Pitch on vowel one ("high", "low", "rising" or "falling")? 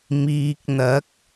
low